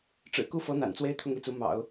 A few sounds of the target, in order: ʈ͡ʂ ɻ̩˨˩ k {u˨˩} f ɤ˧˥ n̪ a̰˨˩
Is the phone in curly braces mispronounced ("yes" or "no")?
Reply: yes